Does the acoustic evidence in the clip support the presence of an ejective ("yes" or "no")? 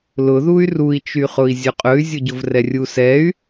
yes